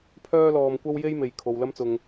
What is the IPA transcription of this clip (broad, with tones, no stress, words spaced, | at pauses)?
pʰœː˥lɔː˧mkʷɐ˥w je˥jme˨j kʰo˨wlɐ˥mt͡sʊ˨ŋ